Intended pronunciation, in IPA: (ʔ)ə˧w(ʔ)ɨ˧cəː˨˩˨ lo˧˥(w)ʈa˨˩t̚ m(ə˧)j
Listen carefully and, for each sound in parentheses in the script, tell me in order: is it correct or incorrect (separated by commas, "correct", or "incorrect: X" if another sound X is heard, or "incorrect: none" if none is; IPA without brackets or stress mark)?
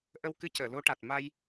correct, incorrect: k, incorrect: none, incorrect: a˧